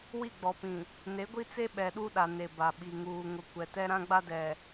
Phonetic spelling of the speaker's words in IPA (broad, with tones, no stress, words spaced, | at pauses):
wi˦˨ɡ͡bɔ˨pĩ˨ | ne˨˦ɡʷi˦t͡se˦ ɓɛ˨ɗu˦ɗa˨ ne˨ba˨ɓi˨ ŋuː˨ŋʊ˨kʷɛ˨ tɛ˦ɾã˦ɡ͡ba˦dɛ˨